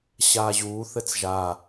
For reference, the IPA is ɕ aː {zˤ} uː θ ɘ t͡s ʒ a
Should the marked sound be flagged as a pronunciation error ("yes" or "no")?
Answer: yes